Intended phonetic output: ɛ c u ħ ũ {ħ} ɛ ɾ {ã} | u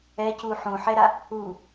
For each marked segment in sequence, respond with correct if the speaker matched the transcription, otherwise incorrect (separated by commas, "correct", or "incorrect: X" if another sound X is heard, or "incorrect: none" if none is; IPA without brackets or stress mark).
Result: correct, incorrect: a